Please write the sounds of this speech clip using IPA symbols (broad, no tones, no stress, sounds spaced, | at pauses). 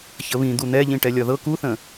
ç ə β ĩ d̪ u n̪ ɛ ʎ ĩ ʈ ɛ lʲ ɒ ð ɤ k u θ ə̃